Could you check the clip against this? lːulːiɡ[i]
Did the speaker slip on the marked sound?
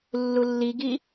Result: no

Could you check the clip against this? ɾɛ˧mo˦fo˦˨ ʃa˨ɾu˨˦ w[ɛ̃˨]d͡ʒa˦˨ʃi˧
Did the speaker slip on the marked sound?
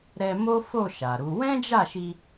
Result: yes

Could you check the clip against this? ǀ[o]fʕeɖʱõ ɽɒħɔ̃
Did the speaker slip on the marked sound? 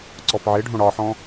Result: yes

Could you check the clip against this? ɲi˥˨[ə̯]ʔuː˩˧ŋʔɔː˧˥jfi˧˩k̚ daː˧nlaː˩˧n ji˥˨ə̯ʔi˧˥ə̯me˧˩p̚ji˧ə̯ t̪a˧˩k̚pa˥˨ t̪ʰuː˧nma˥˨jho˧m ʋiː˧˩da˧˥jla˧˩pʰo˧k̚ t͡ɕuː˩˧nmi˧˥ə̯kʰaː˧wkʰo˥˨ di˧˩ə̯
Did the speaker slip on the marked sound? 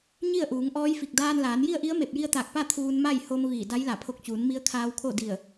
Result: no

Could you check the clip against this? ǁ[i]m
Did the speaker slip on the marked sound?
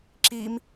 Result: no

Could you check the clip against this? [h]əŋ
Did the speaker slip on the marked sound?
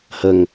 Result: no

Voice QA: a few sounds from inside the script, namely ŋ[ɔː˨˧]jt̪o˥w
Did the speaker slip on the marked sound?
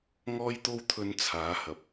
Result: yes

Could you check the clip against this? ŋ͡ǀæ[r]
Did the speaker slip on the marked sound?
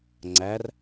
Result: no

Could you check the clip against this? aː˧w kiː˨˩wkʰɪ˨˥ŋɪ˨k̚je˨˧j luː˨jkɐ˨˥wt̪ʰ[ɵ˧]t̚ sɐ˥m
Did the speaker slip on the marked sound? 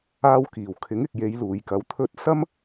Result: yes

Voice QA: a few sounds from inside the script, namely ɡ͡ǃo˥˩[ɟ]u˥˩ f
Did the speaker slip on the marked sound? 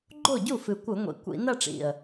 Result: no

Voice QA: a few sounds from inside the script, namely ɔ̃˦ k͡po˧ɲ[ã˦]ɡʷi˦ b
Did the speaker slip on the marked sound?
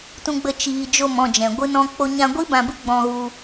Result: yes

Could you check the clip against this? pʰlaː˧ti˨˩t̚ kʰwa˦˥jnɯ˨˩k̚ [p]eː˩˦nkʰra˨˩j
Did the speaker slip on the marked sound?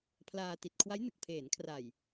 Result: yes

